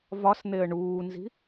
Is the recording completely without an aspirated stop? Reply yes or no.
yes